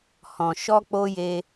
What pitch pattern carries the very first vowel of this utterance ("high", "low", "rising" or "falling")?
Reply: low